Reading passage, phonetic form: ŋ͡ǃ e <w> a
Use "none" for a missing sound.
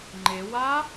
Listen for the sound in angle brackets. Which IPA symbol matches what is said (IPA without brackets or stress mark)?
w